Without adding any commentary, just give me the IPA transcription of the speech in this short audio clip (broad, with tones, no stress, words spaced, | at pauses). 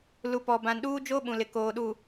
lu˨ pɔ˨ bã˨nɗuː˦ d͡ʒo˦ ɓũ˨lɪ˨ koː˨ɗu˨